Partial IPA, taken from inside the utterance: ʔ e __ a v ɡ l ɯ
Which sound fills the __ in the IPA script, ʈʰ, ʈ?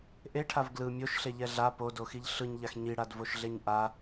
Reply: ʈʰ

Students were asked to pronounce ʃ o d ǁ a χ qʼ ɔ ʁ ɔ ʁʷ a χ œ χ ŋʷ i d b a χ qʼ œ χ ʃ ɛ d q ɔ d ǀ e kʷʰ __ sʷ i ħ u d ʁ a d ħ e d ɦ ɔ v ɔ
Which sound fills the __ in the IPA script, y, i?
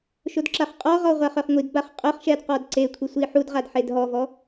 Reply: i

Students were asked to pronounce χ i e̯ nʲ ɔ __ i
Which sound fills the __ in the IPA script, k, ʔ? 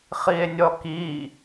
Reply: k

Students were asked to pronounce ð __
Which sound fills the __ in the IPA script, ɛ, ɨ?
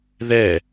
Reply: ɛ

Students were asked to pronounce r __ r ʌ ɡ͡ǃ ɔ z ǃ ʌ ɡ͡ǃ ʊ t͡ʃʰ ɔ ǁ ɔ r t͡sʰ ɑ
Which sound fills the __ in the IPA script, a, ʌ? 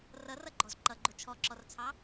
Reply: ʌ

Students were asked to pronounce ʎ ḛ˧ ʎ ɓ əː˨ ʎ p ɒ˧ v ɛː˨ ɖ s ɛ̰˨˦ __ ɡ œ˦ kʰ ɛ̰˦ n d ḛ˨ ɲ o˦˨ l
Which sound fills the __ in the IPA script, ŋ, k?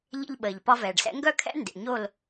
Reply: ŋ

